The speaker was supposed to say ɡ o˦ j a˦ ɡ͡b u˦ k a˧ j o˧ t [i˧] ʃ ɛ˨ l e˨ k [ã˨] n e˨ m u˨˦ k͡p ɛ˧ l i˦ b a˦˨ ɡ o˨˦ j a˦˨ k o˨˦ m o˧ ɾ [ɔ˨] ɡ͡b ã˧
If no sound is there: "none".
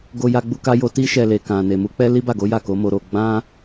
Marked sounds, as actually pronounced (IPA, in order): i˧, ã˨, o˨

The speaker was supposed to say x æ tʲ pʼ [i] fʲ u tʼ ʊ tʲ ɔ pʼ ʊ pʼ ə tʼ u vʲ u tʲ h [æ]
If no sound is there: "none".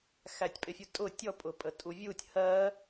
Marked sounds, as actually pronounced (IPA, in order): ɪ, ɜ

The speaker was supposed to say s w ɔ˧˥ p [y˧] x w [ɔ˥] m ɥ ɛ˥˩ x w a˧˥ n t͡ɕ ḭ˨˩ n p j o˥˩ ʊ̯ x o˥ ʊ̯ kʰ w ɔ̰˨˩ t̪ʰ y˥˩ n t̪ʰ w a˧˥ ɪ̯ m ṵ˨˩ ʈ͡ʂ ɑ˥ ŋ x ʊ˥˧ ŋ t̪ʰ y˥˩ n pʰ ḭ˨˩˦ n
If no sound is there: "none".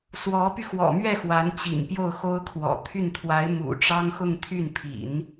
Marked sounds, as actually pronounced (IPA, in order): y˧, ɔ̰˨˩

